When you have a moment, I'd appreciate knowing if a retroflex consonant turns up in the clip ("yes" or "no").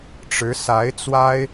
yes